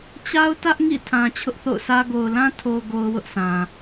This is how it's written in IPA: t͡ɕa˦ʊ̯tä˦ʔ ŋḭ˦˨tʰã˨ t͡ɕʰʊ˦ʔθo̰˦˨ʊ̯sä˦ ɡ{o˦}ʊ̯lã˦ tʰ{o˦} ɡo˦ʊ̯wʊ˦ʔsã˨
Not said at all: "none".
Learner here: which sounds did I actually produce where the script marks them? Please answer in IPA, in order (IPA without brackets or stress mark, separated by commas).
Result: o˨, o˨